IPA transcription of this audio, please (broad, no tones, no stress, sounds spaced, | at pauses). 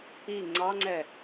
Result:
i ŋ͡ǀ ɑ ŋ͡ǀ ɛ